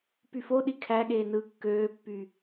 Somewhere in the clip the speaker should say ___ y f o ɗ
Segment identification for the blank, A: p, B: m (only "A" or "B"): A